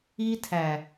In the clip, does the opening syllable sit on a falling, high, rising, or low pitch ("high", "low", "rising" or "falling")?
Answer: high